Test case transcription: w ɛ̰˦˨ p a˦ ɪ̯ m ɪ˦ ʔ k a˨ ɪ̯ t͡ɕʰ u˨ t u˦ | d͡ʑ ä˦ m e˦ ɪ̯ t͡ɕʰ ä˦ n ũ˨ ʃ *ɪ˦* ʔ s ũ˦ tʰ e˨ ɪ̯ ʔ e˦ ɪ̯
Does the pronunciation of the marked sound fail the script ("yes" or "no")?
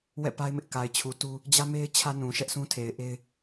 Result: yes